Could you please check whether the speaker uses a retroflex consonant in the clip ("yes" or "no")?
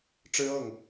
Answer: yes